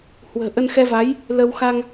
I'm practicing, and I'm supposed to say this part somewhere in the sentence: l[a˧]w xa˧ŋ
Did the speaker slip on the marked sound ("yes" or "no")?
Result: yes